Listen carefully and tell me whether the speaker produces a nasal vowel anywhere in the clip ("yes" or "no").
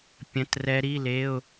yes